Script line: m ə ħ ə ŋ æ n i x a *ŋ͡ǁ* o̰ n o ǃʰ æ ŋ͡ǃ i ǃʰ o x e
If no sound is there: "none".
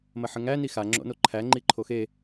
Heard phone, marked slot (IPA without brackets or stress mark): ŋ͡ǁ